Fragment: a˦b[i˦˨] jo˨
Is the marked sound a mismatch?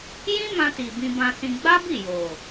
no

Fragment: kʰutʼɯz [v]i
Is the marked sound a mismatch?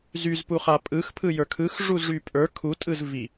no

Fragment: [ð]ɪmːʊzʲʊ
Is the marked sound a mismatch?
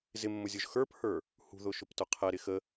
yes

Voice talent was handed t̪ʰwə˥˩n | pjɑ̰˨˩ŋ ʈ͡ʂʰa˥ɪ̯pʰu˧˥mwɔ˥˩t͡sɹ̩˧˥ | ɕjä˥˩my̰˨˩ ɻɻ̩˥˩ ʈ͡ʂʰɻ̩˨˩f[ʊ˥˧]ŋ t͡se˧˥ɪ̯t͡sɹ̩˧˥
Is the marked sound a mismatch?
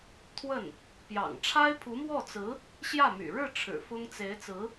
yes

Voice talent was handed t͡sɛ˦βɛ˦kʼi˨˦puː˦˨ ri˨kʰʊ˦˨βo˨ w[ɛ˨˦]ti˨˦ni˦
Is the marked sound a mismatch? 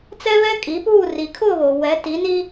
no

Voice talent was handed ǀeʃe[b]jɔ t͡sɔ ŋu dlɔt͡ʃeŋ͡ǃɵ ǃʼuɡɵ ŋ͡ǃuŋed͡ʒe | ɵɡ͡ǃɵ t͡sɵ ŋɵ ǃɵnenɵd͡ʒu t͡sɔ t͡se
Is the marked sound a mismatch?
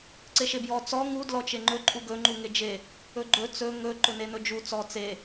no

